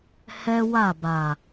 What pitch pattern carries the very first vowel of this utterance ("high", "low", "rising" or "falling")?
high